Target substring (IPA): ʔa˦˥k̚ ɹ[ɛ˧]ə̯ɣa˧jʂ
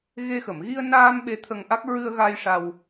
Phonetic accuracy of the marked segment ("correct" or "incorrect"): incorrect